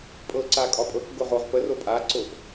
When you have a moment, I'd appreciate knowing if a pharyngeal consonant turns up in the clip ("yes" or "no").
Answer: no